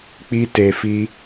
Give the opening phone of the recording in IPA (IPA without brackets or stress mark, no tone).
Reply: k͡p